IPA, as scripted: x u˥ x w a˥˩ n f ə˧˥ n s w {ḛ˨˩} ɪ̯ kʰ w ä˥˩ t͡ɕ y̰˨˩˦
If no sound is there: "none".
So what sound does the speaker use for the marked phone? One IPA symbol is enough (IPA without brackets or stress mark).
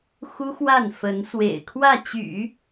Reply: ḛ˨˩